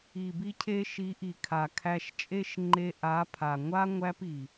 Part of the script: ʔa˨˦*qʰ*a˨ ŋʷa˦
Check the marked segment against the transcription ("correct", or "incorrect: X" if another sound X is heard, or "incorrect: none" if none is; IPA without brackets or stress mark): incorrect: pʰ